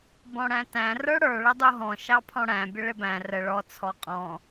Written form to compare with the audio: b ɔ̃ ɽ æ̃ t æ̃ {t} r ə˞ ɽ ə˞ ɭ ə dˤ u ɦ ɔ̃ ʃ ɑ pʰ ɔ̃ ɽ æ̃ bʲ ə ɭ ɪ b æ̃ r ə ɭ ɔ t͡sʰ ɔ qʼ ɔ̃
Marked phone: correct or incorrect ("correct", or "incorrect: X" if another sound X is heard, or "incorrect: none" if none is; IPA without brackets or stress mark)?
incorrect: none